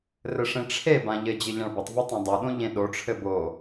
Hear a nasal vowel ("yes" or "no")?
yes